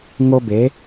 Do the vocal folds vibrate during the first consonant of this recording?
yes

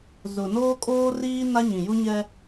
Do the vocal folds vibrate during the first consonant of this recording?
yes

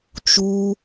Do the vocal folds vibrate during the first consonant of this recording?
no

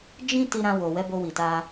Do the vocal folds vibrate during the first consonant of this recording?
yes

